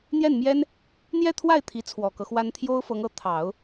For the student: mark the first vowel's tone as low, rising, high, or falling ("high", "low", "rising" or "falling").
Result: falling